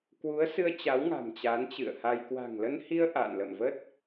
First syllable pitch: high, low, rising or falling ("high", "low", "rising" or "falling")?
rising